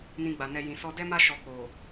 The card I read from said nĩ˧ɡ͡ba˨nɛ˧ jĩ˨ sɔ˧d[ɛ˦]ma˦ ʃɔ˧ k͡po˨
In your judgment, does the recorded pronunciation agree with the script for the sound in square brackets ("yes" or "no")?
yes